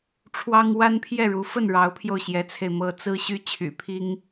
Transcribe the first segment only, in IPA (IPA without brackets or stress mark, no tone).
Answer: ʈ͡ʂʰ